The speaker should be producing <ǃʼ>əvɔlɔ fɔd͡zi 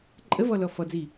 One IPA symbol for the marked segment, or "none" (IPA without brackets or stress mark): ǃʼ